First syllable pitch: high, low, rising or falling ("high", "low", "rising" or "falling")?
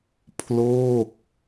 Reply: falling